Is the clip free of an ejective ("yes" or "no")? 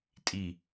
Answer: no